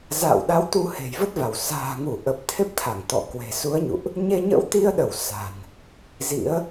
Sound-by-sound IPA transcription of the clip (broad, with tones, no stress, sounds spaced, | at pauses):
z a̰ː˧˨ w ɗ a˨˦ w t̪ u˨˦ h e̤˨˩ j v ə˦˥ t̚ v a˧˩ w s a̤ː˨˩ ŋ u˧˩ ʔ ə˨˩ p̚ t̪ʰ e˦˥ p̚ t̪ʰ a˧˩ ŋ t̪ ɔ̰˧˨ k w e̤˨˩ s u˨˦ ə̯ ɲ ṵ˧˨ ʔ | ɲ e˧ ɲ ə̰˧˥ w t̪ i˧ ə̯ ɗ ə˧˩ w s a̤˨˩ n | z ḭ˧˥ ə̯